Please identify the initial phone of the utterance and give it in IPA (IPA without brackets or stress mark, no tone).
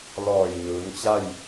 l